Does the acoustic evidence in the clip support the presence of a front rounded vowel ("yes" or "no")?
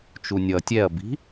no